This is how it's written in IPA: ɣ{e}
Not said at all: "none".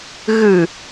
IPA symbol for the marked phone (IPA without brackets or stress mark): ɨ